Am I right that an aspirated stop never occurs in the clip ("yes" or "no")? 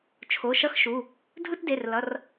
no